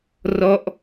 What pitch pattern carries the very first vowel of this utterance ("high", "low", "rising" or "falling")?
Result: falling